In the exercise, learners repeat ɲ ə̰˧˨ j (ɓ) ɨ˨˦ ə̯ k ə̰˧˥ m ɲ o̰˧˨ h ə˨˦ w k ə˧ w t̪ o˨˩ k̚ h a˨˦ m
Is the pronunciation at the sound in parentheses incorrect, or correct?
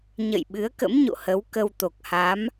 correct